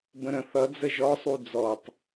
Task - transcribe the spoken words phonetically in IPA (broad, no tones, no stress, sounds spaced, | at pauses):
b ə̃ ɾ ə̃ θ ʌ d͡z ə ʒ ɔ sˤ u d͡z ɔ tˤ